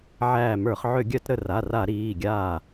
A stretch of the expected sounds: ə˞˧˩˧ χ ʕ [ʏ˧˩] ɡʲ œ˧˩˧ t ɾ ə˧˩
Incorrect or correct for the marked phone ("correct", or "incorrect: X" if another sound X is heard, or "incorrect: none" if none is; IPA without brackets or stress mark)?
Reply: incorrect: ʏ˧˩˧